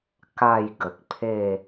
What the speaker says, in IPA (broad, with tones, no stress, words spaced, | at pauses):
ka˥˧j ɡə˨k̚pʰe˥˧